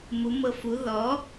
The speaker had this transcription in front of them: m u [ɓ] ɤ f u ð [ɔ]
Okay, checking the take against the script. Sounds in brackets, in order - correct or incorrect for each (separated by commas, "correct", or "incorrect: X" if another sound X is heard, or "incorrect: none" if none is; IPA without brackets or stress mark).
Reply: incorrect: m, correct